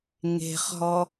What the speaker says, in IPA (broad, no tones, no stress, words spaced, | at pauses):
ŋe̤χɦɔ